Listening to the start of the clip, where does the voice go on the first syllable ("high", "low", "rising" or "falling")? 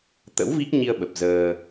rising